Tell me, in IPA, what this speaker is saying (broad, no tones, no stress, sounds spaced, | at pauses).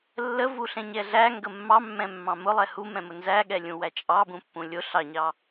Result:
lː ə v u ɬ ɛ̃ ɲ ɛ ɮ æ ŋ ɡ ə mː ɑ mː ɛ̃ mː ɑ̃ m ʊ lˠ ɛ h u m ɛ̃ m ʊ n z æ ɠ ɛ lʲ ũ w æ t͡ʃʼ ɑ b ũ pː ũ lʲ ʊ ɬ ɑ ɲ ɑ